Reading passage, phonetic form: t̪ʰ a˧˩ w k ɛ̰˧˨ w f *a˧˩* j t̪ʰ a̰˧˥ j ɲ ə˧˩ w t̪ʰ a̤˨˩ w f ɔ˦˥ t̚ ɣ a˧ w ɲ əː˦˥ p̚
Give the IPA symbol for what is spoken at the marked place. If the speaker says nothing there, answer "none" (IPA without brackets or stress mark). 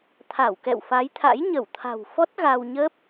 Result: a˨˦